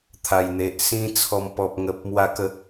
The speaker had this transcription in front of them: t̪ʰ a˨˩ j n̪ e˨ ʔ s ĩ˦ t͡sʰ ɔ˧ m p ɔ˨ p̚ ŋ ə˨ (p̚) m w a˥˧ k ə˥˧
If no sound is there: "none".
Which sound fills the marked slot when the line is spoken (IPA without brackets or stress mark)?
p̚